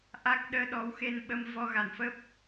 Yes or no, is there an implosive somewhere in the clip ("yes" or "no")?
yes